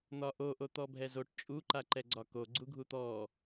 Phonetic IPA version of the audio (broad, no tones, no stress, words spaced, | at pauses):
n̪ɒʔo ʔot̪ɔbʱɛzoʈ t͡ʃʼu ǃaǃɛɡ͡ǀɒko ɡ͡ǀuɡʱut̪ɔ